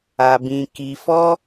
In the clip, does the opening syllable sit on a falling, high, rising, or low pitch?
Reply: low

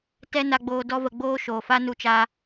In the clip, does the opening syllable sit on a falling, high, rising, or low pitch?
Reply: high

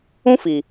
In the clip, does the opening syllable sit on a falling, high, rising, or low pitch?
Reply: high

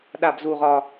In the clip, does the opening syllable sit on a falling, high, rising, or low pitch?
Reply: low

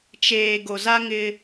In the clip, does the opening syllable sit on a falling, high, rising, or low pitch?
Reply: low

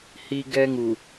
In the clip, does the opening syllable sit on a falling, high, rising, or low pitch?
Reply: high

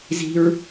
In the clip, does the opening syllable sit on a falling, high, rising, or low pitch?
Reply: high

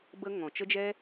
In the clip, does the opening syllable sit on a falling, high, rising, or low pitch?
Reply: high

